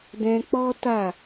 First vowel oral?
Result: no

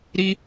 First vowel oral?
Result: yes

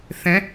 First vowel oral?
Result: no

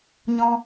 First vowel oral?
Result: no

